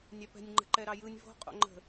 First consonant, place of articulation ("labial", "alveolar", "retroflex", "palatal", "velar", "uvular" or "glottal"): alveolar